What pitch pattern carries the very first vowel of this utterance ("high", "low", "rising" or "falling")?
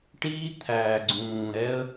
high